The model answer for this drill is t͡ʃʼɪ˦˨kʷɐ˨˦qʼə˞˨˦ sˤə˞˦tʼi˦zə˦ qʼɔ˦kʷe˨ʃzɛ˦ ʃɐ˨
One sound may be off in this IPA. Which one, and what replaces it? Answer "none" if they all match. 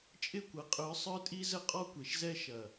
none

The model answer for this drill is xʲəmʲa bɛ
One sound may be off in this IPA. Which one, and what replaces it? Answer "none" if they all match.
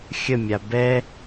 none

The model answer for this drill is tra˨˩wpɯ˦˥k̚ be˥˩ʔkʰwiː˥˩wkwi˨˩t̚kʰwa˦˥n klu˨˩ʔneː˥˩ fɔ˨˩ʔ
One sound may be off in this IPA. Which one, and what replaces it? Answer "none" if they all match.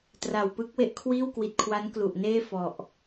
b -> w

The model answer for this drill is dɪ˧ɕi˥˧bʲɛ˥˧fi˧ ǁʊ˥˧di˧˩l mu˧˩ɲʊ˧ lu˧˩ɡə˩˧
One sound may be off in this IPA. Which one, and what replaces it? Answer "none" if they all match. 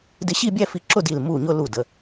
ɡ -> d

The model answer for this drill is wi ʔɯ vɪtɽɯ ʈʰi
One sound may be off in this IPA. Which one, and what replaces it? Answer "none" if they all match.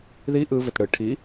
w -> ð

